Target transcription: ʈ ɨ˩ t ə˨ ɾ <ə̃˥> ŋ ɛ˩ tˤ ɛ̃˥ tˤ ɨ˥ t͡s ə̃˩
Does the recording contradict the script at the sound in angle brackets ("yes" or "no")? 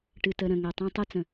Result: yes